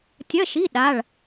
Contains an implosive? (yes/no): yes